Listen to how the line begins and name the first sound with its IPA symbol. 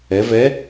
ɛ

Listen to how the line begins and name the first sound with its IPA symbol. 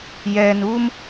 j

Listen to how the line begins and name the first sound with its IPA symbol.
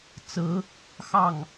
t͡s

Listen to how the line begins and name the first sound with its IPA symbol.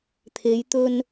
t̪ʰ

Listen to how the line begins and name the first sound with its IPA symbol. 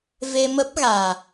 v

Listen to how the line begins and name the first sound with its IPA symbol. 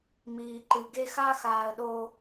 m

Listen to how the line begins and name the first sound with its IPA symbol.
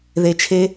ð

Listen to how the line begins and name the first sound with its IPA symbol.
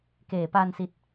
k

